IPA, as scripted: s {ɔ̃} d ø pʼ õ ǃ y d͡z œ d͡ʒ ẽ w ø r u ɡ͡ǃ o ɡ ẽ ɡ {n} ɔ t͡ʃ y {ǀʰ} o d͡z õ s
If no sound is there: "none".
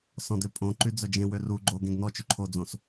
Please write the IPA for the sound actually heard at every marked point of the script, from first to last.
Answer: ɔ̃, n, ǃʰ

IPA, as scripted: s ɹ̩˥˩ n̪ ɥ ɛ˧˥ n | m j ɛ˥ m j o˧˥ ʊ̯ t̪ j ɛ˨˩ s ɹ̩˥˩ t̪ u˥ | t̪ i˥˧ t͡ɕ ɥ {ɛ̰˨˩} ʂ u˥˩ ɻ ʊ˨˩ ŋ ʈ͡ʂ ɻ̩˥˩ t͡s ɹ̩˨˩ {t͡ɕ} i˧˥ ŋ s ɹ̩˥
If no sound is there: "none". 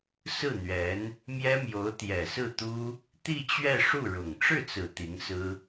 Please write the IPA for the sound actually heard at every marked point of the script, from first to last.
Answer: ɛ˥˧, t̪

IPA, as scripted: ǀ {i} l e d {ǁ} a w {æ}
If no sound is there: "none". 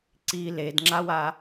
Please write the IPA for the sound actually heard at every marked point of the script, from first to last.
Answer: i, ŋ͡ǁ, a

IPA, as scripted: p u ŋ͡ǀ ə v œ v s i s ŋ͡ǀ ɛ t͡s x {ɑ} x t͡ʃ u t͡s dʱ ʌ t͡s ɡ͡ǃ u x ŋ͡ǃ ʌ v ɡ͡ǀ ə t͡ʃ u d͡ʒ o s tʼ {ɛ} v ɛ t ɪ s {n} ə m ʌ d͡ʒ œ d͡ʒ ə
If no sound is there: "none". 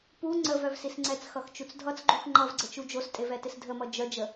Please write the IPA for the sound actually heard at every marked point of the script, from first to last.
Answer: ʌ, e, dʱ

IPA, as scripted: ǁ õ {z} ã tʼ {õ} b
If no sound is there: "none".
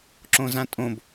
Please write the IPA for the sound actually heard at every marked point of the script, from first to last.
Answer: z, õ

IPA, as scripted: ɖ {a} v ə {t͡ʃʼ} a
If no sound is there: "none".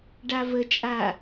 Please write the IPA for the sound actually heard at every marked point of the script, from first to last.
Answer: a, t͡ʃʼ

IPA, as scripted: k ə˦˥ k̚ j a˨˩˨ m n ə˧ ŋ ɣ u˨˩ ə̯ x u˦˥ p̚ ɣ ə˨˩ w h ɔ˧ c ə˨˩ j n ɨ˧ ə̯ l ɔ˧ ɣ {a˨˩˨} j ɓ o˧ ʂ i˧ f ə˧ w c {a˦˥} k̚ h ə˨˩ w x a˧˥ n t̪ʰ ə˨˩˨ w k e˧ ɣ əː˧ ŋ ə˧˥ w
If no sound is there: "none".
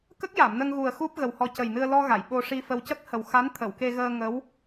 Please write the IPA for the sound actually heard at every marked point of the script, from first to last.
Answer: a˨˩˨, ə˦˥

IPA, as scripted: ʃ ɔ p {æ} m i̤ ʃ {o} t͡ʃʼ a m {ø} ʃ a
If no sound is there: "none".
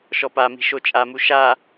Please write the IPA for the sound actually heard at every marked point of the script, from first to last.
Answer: a, o, u

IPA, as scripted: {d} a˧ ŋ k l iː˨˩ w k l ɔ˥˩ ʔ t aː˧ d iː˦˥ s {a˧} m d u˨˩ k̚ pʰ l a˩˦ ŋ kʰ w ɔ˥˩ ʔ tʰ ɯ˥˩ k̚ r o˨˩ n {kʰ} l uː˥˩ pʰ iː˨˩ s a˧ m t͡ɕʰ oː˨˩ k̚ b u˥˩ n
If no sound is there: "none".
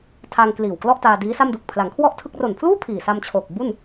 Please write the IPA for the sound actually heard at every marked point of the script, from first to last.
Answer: tʰ, a˥˩, pʰ

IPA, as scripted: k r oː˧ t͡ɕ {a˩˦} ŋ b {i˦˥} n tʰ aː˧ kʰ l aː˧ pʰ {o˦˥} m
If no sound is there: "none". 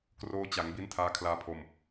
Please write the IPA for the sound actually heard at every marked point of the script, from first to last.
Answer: a˩˦, i˦˥, o˧

